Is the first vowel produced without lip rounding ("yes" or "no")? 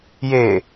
yes